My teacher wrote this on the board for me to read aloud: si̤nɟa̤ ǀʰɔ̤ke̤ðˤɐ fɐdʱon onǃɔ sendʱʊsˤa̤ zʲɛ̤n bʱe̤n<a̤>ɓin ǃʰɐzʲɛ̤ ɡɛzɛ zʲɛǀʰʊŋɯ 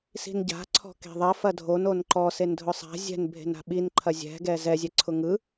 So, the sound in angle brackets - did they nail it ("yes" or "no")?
yes